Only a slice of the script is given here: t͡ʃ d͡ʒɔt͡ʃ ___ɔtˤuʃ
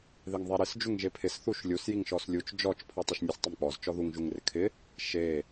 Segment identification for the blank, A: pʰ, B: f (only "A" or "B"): A